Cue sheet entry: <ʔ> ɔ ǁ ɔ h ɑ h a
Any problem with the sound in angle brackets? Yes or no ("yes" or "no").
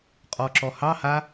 yes